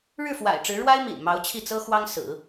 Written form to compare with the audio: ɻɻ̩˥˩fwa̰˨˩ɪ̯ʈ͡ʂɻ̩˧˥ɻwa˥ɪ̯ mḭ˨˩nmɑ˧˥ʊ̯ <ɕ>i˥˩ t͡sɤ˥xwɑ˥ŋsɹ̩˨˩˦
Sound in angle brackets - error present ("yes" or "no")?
yes